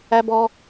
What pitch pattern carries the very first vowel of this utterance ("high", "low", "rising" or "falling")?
high